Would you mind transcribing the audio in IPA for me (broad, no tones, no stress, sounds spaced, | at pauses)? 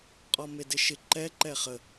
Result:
qʼ ɔ m e d ɪ ʃ ɪ ǃ ɛ ǃ ɛ χ ə